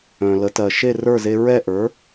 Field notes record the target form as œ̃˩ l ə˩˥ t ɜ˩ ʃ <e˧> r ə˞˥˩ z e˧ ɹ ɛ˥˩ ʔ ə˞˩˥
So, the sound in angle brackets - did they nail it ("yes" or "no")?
no